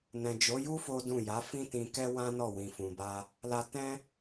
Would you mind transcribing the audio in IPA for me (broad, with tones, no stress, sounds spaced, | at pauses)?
n ɛ̃˨ d͡ʒ o˨˦ j u˦ f o˦ d ũ˦˨ j a˨˦ f ĩ˦ t ĩ˧ k ɛ˦ w ã˦ n ɔ˦˨ w ĩ˨ f ũ˨ b a˧ | l a˧ t ɛ̃˦